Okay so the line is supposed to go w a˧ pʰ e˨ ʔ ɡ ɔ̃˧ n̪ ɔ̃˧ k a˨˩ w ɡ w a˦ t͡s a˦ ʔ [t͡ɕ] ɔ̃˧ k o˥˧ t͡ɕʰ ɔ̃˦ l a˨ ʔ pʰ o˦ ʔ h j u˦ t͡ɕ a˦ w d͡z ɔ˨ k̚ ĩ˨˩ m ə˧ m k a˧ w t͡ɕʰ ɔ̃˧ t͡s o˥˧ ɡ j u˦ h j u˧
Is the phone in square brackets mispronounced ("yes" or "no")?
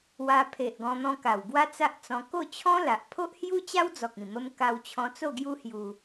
yes